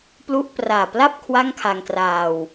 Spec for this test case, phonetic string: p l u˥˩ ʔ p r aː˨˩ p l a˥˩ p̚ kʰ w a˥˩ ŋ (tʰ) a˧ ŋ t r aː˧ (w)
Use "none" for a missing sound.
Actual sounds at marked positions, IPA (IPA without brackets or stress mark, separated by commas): kʰ, w